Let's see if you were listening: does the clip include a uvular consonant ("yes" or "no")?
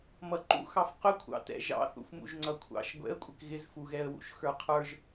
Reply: yes